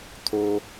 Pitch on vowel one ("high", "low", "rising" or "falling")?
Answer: high